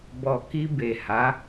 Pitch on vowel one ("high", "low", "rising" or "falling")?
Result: low